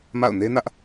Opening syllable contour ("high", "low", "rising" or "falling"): falling